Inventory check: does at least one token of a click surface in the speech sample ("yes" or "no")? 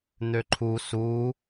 yes